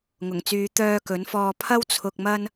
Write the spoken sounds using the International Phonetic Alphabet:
ŋʊ˨˩ŋt͡syː˨˧ t̪œː˧kɵ˨˥nfɔː˧ pʰɐ˥wt͡sʰʊ˧k̚mɐ˥n

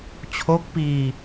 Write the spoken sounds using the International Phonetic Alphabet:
t͡ɕʰo˦˥k̚piː˧

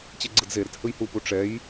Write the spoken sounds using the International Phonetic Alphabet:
t͡ɕeɡ͡ǀɯdzeɾɛt hɯjhupu ʈ͡ʂɛj

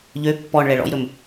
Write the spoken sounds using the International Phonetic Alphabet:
ʎø pːɔɳ ɭɛɭɔ̰jɾɵm

